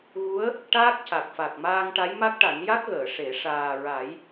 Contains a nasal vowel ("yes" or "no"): no